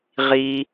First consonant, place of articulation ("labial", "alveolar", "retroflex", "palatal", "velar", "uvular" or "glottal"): uvular